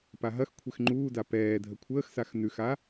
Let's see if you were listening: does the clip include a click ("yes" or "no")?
yes